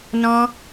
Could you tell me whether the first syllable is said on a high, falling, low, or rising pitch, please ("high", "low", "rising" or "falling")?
high